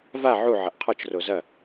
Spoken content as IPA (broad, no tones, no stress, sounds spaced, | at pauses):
v a ʕ u ʕ ɐ ʔ qʰ ɔ t͡ʃ r o z ɐ